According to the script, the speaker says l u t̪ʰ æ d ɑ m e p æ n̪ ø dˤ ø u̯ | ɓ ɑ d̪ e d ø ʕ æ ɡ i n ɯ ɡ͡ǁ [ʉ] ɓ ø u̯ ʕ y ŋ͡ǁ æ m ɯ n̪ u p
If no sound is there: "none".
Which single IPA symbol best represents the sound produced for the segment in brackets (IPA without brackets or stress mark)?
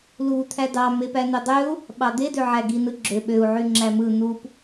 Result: ø